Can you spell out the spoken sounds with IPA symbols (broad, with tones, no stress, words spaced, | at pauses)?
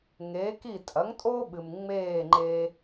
ŋeː˩˥ki˥˩ tʼɐ˩˥ŋtʼo˥ ɓɨ˩m ŋ͡meː˥˩ŋ͡ǃe˧